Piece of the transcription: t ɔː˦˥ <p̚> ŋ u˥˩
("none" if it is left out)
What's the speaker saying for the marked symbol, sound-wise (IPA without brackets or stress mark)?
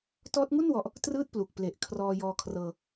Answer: t̚